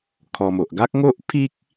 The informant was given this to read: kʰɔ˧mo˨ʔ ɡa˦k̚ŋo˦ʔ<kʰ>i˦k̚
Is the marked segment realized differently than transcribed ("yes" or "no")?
yes